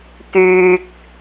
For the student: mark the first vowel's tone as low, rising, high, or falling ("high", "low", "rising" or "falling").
low